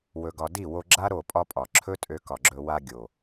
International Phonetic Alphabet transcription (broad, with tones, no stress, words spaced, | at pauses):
wɵ˨ɡɒ˨ di˦˨wo˧ɡ͡ǁa˦ ɾo˦˨pʼɒ˦pʼɒ˨ ǁʰɵ˦tʼø˧ kɒ˨ɡ͡ǁɵ˧ wa˧ ɡʲo˨